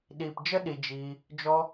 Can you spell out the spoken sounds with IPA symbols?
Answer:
ɗ iː˨ p d͡ʒ ə˦ ɗ i˨ d͡ʒ iː˧ | d͡ʒ ɔ˧

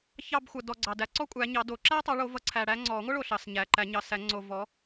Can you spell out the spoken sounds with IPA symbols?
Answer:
ç ɑ˦˨ b xʷ ʌ˨ d ɔ˨ ɡ͡ǀ ɑ˨ d æ˨˦ ǀ ɔ˥ kʷʼ æ˨˦ ɲ ɑ˨˦ d o˨˩˦ ǁ æ˥ tˤ o˨˦ ɭ o˨˦ v ʌ˨˦ ǀʰ æ˨ ɽ æ˥ ŋ͡ǀ ɔ˨˩˦ ŋʷ ʌ˥ ɭ o˨ ɬ ɑ˨ s ɲ æ˨ ǃ æ˨˩˦ ɲ ɑ˨ s æ˨˩˦ ŋ͡ǀ o˨ v ɔ˨˦

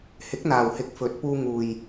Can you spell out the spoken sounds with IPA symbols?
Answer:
h ɪ˨˥ k̚ n̪ aː˨ w h ɪ˨˥ k̚ f ɵ˨˥ t̚ p uː˧ ŋ uː˨ j

